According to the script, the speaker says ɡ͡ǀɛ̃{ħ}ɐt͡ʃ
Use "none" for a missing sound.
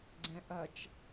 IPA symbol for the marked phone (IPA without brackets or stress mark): ʔ